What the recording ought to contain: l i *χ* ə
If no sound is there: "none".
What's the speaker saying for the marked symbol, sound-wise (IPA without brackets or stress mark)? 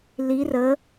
r